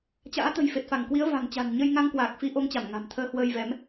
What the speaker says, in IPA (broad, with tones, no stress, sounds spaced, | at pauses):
t͡ɕ a̰ː˧˥ t̪ ə̤˨˩ j f e˨˩ t̚ f a˧˩ ŋ k w i˨˦ ə̯ v a̤˨˩ ŋ t͡ɕ a̤˨˩ n ɲ ə˧ j ŋ a˧ ŋ k w aː˨˩ k̚ f i˨˦ ʔ o˨˦ ŋ t͡ɕ a˧˩ m ŋ a̤˨˩ m t̪ʰ əː˧ h w əː˧ j v ɛ˨˦ m